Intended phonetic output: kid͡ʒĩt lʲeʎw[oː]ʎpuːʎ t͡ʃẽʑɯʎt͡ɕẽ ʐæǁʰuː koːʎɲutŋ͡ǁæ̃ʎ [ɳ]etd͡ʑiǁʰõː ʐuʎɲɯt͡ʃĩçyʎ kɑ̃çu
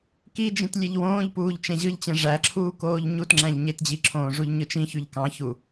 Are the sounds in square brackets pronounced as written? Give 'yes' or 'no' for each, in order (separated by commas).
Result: no, no